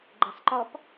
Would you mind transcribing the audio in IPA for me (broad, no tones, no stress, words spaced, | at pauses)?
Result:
ɡ͡ǃɪːsˤǃɔp